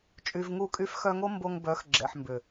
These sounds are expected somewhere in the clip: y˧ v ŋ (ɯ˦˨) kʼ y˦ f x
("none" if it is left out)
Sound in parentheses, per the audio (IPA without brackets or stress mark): u˦˨